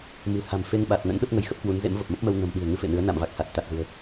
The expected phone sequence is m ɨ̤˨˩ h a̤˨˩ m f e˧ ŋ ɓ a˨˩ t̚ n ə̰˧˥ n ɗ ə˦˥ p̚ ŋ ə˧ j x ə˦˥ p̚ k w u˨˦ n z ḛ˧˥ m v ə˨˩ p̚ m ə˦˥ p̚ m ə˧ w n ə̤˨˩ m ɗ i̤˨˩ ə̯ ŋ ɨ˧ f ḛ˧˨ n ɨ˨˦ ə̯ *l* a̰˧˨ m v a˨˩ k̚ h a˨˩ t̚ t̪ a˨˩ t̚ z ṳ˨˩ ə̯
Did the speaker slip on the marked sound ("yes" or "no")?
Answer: yes